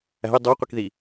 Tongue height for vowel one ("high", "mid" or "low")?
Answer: low